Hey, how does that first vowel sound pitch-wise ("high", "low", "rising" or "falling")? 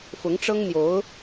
rising